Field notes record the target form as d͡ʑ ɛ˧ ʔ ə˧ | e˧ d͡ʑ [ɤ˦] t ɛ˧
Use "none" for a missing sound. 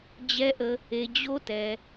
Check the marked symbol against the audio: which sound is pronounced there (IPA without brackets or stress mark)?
o˦